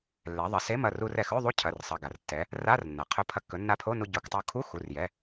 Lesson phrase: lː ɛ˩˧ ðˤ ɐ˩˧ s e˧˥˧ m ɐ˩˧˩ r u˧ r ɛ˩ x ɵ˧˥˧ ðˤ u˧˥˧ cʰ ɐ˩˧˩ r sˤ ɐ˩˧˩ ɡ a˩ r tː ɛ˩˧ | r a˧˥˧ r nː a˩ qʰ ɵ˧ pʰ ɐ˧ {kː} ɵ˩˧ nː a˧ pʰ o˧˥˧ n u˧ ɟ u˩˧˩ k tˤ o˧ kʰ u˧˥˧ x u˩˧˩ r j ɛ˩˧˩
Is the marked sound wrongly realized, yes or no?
no